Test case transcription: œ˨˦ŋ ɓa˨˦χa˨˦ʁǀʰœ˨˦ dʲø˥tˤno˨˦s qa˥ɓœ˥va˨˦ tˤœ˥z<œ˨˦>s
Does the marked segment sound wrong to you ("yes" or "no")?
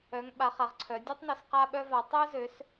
yes